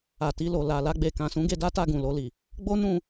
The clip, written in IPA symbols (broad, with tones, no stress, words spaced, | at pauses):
a˨ti˧lo˨ la˨la˧ɡ͡be˨ kã˨sũ˨˦ ɡe˧da˦ta˦˨ ɡũ˨lo˧li˨ | ɡ͡bo˦nũ˦˨